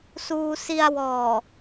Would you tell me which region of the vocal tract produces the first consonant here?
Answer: tongue tip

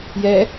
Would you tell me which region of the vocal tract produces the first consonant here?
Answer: palate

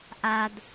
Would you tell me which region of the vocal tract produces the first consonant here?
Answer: throat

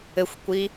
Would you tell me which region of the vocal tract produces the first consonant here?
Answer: velum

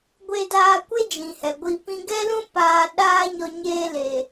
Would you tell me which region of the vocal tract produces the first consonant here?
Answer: velum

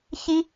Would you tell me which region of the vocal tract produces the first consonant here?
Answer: palate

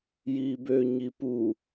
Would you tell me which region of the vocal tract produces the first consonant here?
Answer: palate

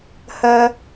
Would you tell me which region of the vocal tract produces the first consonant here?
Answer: throat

